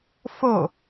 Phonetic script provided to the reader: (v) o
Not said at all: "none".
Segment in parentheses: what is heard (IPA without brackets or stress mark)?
f